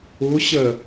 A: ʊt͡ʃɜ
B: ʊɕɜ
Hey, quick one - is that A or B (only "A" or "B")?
B